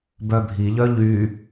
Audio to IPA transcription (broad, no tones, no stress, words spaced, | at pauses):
bœbʱiʎœ ʎy